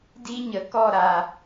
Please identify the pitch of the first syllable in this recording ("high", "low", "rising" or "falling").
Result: high